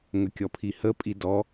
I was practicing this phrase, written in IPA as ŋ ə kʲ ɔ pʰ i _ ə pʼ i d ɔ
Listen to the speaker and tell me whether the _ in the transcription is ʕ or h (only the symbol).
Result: h